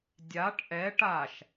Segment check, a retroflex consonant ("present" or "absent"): present